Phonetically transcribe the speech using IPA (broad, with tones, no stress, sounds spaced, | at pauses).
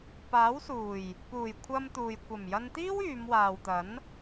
p aː˨˥ w s uː˨˩ j | p uː˨˩ j kʷʰ ɐ˧ m t̪ uː˨ j kʷ ɐ˨˩ m j ɐ˧ n t̪ iː˥ w yː˨˧ m w aː˨ w t̪ ɐ˨˥ n